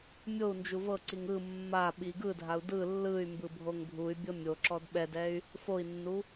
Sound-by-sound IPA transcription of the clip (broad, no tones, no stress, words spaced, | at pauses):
mʲou̯ nd͡ʒuvɤǀiŋ ɯ mːaɓi ɡɯdʱau̯ dɯ lːɯy̯mbɯ bʱoŋbʱuy̯bʲɤ mʲoǁɔd ɓɛdɛy̯ | foi̯nːu